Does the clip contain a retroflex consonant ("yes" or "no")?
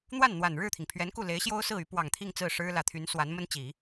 yes